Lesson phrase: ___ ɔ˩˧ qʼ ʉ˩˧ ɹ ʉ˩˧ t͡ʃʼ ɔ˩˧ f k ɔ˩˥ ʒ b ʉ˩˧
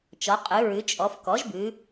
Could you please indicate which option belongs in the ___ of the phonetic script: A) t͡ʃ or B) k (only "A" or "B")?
A